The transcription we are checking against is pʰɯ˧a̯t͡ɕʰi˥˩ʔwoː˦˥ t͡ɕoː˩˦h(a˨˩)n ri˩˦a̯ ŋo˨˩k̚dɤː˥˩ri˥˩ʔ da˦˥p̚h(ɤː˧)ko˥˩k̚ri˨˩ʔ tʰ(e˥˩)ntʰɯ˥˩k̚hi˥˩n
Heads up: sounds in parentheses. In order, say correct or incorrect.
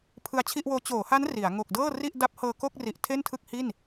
incorrect: a˦˥, correct, correct

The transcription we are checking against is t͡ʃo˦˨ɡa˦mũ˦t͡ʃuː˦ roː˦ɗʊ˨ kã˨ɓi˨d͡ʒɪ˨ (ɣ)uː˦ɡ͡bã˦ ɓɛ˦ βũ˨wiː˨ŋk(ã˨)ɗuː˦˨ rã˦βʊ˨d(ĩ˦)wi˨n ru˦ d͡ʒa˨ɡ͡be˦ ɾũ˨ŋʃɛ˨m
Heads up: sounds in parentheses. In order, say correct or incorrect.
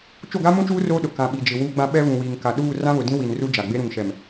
incorrect: w, incorrect: a˨, correct

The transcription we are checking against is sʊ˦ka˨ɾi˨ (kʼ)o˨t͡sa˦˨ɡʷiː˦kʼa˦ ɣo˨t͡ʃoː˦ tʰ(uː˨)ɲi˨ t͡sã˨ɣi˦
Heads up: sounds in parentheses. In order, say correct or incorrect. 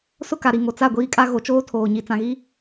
incorrect: ŋ, incorrect: oː˨

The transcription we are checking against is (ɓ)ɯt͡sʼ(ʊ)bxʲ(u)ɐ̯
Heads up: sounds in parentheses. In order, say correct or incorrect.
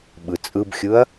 correct, incorrect: ɯ, incorrect: ɯ

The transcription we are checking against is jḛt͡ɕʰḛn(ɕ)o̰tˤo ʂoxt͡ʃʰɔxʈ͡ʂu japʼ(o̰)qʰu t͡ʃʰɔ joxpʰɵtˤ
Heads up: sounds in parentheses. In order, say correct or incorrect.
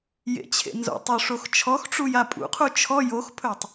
incorrect: z, incorrect: ṵ

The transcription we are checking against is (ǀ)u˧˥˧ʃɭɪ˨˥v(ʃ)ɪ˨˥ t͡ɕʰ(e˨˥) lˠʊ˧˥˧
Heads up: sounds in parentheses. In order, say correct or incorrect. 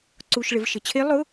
correct, correct, incorrect: e˦˥

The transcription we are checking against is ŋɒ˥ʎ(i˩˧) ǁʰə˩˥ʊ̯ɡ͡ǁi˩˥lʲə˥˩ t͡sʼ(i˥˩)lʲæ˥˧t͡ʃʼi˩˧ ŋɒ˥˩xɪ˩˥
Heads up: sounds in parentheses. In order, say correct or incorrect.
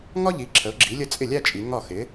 correct, incorrect: ɪ˥˩

